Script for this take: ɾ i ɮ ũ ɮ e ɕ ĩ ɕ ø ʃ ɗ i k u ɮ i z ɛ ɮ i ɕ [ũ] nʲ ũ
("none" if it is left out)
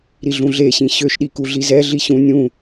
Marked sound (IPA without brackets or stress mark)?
ũ